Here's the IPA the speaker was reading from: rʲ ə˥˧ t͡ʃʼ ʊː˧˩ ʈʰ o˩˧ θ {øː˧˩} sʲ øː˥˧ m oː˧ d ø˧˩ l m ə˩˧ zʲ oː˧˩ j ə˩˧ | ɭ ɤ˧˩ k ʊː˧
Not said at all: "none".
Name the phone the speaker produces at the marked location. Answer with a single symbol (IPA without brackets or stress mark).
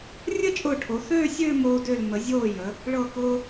øː˥˧